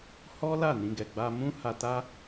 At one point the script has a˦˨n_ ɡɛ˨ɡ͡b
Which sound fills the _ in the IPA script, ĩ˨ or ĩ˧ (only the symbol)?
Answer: ĩ˧